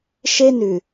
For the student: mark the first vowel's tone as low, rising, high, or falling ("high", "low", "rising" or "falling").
high